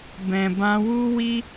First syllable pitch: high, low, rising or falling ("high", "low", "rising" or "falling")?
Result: low